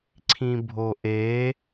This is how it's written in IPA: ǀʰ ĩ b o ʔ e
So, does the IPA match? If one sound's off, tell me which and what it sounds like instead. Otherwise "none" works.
b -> bʱ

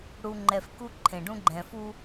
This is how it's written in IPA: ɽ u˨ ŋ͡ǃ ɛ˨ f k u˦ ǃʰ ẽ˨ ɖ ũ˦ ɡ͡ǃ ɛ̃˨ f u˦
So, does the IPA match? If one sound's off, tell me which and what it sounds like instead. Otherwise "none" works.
none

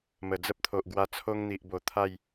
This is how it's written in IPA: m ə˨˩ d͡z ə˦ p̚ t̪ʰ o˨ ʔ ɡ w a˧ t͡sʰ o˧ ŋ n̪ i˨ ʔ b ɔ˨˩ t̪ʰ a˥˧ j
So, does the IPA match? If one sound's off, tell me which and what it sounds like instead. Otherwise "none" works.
ɔ˨˩ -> o˨˩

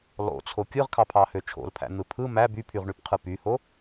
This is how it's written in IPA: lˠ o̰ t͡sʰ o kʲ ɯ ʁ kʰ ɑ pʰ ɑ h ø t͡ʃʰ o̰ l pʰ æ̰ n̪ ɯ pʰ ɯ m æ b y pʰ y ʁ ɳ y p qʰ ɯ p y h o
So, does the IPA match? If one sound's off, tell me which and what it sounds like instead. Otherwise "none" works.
none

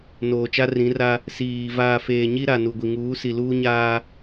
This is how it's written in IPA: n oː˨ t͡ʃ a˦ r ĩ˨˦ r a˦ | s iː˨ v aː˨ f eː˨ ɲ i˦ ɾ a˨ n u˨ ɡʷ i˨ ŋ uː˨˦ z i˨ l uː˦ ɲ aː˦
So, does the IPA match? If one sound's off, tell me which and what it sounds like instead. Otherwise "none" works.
z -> s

